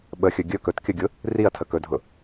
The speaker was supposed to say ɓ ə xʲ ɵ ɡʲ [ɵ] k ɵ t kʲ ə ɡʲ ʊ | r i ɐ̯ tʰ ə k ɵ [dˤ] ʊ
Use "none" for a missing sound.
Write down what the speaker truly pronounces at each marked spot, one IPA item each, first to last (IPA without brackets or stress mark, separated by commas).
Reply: ɵ, dʱ